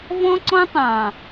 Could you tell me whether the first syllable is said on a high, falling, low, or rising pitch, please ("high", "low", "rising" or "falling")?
high